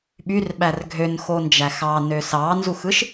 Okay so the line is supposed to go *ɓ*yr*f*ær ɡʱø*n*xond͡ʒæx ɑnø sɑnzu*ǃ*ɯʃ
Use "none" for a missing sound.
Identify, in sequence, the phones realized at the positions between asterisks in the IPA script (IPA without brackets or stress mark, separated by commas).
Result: ɓ, ɓ, n, x